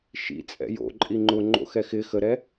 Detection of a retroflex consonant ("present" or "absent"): absent